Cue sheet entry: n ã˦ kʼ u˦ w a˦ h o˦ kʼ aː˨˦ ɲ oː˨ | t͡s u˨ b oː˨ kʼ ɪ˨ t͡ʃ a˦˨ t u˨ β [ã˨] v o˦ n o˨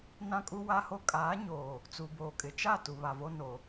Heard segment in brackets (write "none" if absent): a˨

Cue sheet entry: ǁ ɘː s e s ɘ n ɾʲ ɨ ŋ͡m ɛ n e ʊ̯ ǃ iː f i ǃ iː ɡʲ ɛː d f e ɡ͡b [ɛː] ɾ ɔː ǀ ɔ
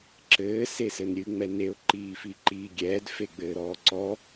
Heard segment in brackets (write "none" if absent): ɘː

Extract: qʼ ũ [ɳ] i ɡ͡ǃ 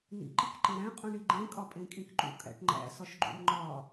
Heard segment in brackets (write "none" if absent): ɳ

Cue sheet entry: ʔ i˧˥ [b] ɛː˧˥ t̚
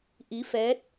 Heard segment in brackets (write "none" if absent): f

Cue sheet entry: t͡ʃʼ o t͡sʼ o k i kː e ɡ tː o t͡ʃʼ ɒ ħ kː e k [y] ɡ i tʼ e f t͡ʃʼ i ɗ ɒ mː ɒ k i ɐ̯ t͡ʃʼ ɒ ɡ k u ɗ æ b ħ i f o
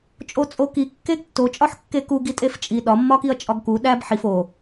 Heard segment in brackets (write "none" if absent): u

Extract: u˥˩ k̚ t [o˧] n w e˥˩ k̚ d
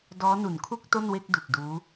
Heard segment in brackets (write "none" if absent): o˥˩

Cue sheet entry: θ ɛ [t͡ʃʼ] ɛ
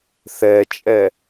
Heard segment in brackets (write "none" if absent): t͡ʃʼ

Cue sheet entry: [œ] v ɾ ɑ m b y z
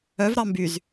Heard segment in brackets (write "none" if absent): œ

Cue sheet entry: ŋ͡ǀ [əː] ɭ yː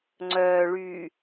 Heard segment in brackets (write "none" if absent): œː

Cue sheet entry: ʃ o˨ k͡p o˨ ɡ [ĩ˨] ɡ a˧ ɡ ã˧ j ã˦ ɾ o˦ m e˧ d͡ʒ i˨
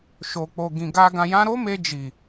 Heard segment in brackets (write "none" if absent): ĩ˨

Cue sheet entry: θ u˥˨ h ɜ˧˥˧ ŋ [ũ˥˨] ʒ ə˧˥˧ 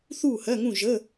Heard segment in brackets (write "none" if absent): ũ˥˨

